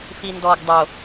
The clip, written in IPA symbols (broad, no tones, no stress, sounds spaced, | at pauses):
f i n d ɔ ɡ dˤ o